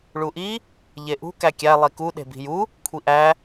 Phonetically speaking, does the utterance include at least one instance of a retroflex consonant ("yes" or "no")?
yes